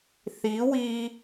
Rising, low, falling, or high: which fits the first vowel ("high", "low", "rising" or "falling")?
rising